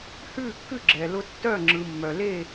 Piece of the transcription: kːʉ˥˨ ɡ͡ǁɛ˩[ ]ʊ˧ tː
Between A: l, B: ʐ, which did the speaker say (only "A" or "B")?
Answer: A